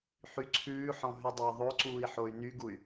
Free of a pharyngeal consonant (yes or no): no